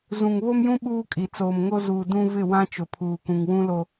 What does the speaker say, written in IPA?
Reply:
zũ˨ŋβo˦mjũ˦ ɓuː˦kʼi˨ t͡soː˨mŋo˦ zuː˨ dũ˦ vɪ˦˨wã˦ t͡ʃʊ˨pʰuː˨kũ˨ŋ wũ˦lo˦

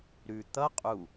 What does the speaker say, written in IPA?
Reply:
ɾʉ t̪ʌ qʼu

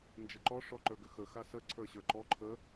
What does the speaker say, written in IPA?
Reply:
nd͡ʒəǃɔ ʂɔǃə˞ɡʏxə xasə ǀʰə˞ɕə˞ǃɔ ǃʰə

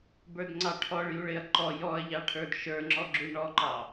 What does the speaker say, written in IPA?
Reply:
bə˞dŋ͡ǀɑʈʰɔɭ juɭɪɐ̯ ǃɔ jɔɐ̯ʎɑʈʰə˞d ʃə˞ŋ͡ǁɔɡ͡ǁu ɳɔǃɑ

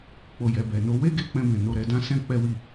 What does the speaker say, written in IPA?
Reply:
k͡po˨ jɛ˨bɛ˨no˨˦ we˦ɡe˦k͡pɛ̃˧bɛ̃˨ no˧ɾɛ˧dã˦ sɛ̃˦ k͡pɛ˦wi˦˨

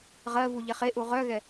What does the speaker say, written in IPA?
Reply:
ʁɜvu ʎɛχeʔu ʁœɣɛ

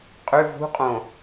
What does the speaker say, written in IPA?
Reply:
qʼʏ vṳqʼõ

